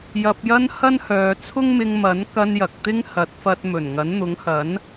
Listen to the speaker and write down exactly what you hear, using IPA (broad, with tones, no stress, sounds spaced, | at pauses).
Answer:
j ɐ˧ p̚ j ɐ˥ n h ɐ˥ n h œː˨˧ t͡sʰ ʊ˥ ŋ m ɪ˧ ŋ m ɐ˨˥ n k ɐ˧ n j ɐ˨ k̚ t̪ ɪ˥ ŋ h ɐ˨˥ t̚ f ɐ˧ t̚ m ɵ˨˩ n ŋ ɐ˨˥ n n̪ ʊ˨˥ ŋ h ɐ˨˥ n